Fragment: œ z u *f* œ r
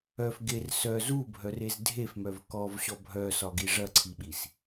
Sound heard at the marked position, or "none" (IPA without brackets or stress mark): bʱ